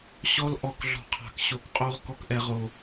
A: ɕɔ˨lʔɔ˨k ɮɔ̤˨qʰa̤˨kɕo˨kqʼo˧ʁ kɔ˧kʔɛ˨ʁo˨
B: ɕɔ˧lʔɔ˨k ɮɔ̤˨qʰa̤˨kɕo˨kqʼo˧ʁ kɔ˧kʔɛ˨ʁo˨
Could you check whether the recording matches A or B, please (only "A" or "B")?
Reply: B